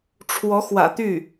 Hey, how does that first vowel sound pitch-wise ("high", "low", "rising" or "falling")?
rising